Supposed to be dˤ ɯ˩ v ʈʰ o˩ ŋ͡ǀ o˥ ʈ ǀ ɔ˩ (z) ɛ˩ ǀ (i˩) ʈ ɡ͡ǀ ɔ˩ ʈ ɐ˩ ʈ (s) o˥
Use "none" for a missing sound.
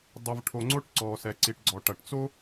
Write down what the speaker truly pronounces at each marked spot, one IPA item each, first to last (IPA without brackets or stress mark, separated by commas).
s, i˩, t͡s